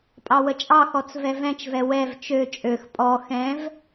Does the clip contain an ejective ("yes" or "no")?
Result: yes